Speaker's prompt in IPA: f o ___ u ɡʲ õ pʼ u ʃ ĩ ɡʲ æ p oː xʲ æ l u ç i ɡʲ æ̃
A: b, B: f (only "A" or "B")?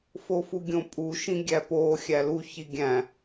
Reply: B